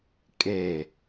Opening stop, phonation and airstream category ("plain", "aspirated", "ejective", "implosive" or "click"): ejective